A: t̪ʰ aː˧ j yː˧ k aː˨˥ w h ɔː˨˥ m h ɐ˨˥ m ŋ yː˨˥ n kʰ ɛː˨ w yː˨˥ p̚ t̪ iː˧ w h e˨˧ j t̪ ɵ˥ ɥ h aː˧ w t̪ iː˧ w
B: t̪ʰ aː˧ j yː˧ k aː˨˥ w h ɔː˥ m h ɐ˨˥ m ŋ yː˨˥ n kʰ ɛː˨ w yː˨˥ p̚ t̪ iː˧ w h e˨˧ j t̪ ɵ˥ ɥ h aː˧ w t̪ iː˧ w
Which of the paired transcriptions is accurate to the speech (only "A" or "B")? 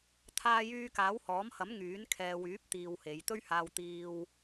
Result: A